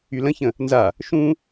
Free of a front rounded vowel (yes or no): no